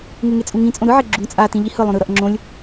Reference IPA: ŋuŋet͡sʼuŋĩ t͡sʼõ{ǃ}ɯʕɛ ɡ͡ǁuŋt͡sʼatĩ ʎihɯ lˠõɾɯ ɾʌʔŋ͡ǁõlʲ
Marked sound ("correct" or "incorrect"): incorrect